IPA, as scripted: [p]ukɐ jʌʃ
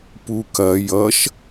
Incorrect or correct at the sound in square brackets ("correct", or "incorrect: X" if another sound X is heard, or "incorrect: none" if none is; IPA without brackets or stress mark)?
correct